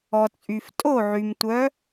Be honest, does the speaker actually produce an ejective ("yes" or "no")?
yes